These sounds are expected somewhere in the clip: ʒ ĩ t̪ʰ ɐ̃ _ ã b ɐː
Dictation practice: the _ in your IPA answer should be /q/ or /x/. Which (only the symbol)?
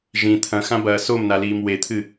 x